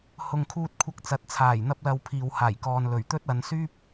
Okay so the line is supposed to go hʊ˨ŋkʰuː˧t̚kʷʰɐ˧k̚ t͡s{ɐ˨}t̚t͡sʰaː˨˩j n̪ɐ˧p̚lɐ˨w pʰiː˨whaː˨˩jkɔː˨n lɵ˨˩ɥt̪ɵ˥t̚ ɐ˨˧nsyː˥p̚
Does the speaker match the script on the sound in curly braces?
no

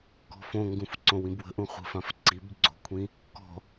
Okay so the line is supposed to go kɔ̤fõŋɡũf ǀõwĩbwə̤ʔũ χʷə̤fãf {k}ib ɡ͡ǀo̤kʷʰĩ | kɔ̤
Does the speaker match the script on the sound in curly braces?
no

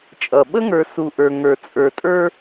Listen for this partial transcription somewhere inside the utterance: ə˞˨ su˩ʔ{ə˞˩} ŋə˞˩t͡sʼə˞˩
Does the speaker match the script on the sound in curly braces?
yes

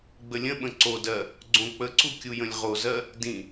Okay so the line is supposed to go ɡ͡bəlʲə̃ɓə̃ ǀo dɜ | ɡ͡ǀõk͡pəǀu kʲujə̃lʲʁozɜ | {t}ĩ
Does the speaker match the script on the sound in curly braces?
no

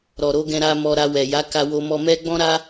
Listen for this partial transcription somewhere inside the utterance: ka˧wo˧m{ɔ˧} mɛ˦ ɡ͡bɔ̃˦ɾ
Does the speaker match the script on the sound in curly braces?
yes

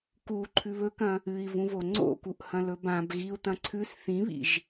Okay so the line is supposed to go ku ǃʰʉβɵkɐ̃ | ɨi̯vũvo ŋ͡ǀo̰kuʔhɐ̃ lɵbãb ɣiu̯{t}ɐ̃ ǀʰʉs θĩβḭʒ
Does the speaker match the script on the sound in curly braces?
yes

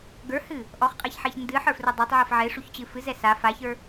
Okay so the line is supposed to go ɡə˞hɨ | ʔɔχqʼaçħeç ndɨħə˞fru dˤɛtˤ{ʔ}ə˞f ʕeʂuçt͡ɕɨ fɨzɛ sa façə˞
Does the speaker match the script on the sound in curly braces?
no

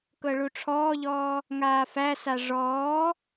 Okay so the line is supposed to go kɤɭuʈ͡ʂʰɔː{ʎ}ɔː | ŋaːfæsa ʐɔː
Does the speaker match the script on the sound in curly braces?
yes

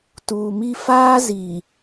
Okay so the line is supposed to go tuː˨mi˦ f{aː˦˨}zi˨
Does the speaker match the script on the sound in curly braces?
no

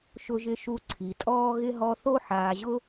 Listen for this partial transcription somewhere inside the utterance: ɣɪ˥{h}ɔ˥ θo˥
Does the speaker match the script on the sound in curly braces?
no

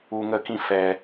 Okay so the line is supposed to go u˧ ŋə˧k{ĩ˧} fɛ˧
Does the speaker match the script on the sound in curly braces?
yes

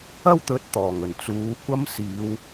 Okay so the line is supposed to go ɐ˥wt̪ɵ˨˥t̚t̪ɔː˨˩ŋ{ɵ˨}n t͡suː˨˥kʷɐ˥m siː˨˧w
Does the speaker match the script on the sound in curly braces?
no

